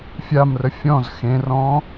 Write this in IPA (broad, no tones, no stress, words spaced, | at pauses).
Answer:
fʲamrə fʲɔ̃z xẽrɔ̃